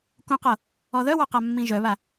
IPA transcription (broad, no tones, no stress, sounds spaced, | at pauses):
k ũ q ɤ | ɔ ð œ w ɑ q a mː ĩ ʒ œ β a